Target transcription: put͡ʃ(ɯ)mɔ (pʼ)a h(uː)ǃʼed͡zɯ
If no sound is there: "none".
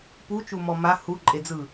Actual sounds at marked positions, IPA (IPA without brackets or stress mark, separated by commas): u, m, u